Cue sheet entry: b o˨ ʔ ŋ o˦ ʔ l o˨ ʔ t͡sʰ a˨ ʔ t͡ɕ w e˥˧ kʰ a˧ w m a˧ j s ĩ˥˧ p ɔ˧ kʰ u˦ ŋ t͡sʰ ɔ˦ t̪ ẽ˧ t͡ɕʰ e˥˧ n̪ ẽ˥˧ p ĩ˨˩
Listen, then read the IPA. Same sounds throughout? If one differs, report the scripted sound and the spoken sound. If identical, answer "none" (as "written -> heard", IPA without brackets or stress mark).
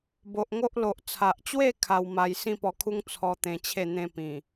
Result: none